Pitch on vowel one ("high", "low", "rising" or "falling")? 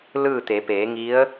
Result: falling